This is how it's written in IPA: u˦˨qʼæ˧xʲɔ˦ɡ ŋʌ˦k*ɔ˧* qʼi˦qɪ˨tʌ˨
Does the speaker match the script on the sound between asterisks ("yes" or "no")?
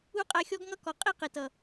no